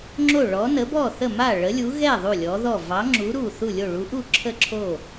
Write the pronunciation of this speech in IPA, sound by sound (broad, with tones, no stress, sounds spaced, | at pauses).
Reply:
ŋ͡ǁ o˥˩ ɭ ɔ˨˥ n ə˨˥ b ɔ˥˩ θ ə˥˩ m a˥˩ ɭ ə˨˥ lʲ u˨˥ ɣ ɛ˥˩ ðˤ u˥˩ lʲ ɔ˨˥ ð ɔ˥˩ v ɑ˨˥ ŋ͡ǁ u˨˥ ɾ u˥˩ θ u˥˩ lʲ o˥˩ ɭ u˨˥ ʔ u˥˩ ǁʰ ə˥˩ ǁʰ o˥˩